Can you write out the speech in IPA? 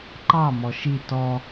ǃ ɑ m ɔ ʃ i t ɔ

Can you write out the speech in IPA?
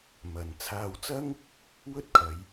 m ɐ˨ n t͡sʰ aː˧ w t͡s ɐ˥ ŋ | w ɵ˥ t̚ kʰ ɐ˨˧ j

